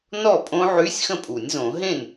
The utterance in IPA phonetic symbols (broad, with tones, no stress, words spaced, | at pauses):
nɔ˥˩pʼõ˦˥ʕy˧˥˧sʲ xə̃˥˩pʼu˨˩˦nʲ zõ˨˩˦ɦẽ˥˩n